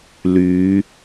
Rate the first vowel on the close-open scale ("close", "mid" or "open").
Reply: close